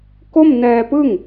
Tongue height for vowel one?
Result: mid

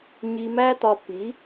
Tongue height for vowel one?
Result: high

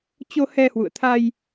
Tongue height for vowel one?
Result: mid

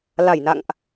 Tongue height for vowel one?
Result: low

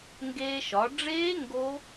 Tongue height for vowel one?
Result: mid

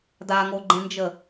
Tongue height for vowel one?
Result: low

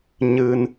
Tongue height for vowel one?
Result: high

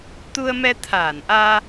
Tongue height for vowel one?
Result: high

